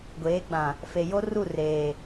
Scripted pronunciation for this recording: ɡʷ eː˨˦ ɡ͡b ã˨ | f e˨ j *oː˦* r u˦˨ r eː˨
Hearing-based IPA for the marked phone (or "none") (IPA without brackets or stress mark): o˦